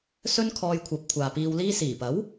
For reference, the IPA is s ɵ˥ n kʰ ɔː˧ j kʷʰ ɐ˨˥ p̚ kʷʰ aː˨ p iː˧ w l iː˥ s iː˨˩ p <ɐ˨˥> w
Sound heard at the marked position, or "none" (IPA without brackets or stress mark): ɐ˨˥